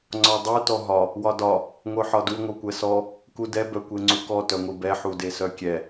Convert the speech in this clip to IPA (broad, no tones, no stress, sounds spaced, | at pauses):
ŋ͡ǀ ɒ dˤ u t ɔ ɦ ɒ | w ɒ d ɒ | ŋʷ œ ħ ɒ d u ŋʷ œ kʷ ɛ s ɔ | k u d ɛ b œ kʷ e ŋ͡ǀ u k ɔ t œ ŋʷ i b ɛ ħ u d e s œ kʲ ɛ